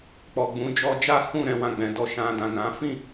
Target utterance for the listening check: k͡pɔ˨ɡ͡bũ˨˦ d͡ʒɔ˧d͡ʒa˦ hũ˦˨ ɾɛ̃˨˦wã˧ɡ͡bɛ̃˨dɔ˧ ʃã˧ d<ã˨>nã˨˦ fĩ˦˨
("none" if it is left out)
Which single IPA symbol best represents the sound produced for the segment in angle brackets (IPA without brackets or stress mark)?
ã˨